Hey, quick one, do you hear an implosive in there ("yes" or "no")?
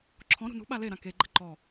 yes